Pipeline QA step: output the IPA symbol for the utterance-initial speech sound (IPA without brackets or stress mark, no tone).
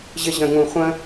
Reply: ʑ